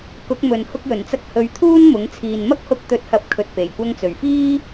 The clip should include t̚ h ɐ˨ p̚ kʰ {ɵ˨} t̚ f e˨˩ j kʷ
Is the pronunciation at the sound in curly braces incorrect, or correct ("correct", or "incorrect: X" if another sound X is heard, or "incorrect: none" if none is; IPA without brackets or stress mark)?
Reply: correct